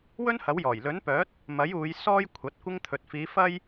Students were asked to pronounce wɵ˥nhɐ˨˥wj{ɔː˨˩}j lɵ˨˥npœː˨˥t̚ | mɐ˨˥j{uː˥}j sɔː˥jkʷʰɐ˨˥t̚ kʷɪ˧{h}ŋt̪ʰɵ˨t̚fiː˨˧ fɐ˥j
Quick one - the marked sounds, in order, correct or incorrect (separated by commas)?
correct, incorrect, incorrect